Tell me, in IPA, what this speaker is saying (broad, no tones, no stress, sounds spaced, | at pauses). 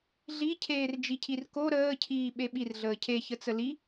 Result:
ɮ i cʰ eː r d͡ʒ i cʰ i r k o ɾ əː cʰ iː ɓ e ɓ i r ɮ əː cʰ e ç ə t͡s ə l i